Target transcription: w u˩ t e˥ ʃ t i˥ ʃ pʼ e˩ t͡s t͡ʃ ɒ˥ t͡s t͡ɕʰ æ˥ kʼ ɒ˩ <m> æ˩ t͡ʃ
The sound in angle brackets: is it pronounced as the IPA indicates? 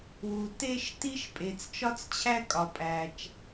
no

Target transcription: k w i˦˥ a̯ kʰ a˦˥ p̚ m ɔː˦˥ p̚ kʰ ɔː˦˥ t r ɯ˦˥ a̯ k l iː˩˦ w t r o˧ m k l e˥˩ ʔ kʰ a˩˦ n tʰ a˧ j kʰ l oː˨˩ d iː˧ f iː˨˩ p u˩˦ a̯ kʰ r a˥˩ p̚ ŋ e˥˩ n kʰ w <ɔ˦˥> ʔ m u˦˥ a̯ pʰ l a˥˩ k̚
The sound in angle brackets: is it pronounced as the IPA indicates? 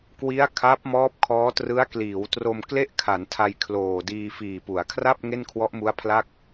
yes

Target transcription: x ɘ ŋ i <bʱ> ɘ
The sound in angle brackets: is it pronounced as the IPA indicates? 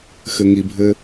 yes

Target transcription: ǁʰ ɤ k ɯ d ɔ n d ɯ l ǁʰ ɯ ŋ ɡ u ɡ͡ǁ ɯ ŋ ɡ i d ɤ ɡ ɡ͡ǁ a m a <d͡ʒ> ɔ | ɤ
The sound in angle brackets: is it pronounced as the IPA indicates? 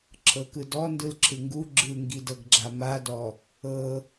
no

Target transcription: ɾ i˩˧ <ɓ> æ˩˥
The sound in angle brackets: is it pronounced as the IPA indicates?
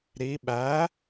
yes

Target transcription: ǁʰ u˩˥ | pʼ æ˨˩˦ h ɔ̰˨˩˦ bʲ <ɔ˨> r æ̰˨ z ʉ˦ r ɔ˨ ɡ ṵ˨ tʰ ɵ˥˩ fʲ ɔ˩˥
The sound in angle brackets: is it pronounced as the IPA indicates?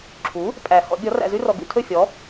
no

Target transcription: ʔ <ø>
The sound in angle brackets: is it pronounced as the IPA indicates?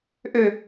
yes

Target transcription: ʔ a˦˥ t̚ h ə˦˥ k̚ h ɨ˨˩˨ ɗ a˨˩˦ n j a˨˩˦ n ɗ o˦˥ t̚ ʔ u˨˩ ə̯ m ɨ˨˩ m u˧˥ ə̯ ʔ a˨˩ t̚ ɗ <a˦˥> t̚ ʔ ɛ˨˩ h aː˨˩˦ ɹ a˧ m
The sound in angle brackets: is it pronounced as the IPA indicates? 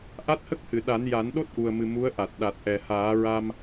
no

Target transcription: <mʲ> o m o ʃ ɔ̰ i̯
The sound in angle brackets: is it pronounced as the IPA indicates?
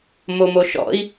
no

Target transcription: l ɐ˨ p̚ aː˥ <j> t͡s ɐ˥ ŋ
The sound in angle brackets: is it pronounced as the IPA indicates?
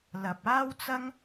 no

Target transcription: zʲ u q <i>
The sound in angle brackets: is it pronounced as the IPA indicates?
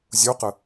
no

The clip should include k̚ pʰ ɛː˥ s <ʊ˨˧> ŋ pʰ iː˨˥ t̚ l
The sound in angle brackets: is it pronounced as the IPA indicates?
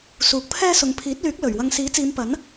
yes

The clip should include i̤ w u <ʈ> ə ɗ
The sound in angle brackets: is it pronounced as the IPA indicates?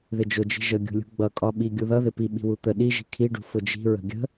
no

